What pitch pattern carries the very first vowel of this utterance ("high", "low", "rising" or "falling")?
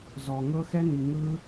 low